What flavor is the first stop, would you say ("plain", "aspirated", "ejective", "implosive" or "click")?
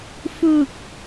plain